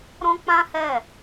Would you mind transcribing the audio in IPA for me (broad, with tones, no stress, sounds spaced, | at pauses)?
ɾ ɔ̃˦ k͡p ã˦ h ɛ˦˨